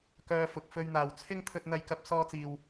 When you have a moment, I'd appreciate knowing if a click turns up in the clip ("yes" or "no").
no